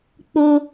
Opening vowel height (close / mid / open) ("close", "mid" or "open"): mid